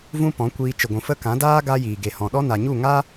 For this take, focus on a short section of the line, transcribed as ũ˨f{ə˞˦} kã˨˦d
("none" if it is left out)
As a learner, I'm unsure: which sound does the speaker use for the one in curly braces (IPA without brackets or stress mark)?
ə˦